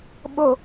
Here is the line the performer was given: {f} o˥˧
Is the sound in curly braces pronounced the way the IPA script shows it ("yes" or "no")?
no